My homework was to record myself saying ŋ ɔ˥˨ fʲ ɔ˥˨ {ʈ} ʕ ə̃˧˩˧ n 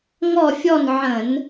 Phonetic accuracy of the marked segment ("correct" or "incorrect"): incorrect